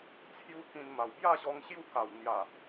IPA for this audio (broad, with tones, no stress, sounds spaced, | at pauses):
t͡sʰ j u˦ k ĩ˧ n m a˨˩ w b j a˥˧ ɕ ɔ˧ ŋ ɕ j u˥˧ k a˨˩ w n̪ j a˨˩